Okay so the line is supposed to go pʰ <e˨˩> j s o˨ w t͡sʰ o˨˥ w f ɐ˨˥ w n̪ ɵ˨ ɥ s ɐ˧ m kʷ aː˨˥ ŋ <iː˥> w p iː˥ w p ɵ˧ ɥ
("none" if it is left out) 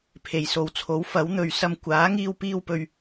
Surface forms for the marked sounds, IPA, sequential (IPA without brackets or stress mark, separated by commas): e˨˩, iː˥